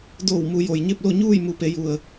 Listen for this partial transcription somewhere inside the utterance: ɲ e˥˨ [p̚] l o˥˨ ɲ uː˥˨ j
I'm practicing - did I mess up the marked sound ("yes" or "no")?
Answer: no